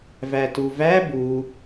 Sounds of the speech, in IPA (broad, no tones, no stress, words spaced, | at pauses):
vætuvæ bu